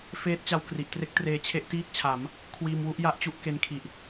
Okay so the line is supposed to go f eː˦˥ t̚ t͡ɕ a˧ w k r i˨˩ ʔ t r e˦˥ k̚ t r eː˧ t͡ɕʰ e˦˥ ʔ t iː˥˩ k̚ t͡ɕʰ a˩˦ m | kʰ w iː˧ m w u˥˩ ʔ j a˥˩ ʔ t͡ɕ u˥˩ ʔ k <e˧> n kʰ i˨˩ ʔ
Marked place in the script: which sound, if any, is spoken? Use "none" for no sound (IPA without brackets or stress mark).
e˦˥